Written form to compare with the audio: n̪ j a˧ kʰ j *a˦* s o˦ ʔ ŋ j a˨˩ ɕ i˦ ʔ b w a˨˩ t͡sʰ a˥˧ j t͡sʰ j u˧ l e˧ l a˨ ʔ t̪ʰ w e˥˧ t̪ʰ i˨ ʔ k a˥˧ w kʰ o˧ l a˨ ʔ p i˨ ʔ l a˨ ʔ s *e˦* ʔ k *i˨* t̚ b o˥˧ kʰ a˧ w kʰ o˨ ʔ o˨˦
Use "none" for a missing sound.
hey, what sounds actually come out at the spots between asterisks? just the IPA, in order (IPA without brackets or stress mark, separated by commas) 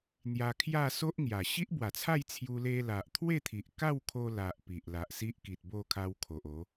a˥˧, i˦, i˨